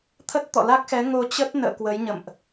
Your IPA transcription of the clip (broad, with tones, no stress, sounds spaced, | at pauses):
t̪ʰ ə˦˥ t̚ t̪ ɔ̰˧˨ l a˦˥ k̚ x ɛ˨˦ ŋ o˧ t͡ɕ ə˦˥ t̚ n ə̰ː˧˨ k w ə˨˦ j ɲ ə̰˧˨ m ʔ